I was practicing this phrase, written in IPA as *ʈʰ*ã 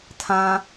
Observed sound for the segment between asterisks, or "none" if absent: tʰ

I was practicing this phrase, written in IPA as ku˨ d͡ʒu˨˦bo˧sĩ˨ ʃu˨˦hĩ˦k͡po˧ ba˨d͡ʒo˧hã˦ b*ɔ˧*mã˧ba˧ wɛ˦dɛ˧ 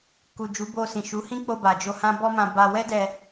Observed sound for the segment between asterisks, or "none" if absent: ɔ˦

